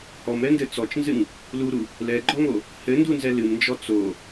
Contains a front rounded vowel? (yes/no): no